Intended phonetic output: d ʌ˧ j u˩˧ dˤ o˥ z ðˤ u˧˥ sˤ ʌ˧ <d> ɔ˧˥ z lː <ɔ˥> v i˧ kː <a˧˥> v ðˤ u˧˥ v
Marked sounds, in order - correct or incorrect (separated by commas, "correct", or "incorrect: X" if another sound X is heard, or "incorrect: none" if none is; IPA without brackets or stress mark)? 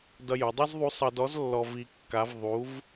correct, incorrect: ɔ˧, correct